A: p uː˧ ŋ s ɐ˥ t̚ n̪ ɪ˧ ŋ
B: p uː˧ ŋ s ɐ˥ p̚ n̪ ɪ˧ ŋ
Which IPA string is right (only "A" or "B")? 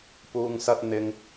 A